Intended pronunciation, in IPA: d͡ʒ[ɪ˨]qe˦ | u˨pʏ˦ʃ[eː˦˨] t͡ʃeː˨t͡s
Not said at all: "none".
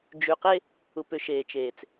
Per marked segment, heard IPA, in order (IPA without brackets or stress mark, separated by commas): y˨, eː˨